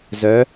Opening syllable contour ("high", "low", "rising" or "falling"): rising